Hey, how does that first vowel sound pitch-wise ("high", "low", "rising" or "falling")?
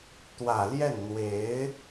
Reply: low